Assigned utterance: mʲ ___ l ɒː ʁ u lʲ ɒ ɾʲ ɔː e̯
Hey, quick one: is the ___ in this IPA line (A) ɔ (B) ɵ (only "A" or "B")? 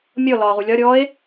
A